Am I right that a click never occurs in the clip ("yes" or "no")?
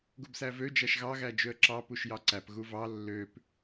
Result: no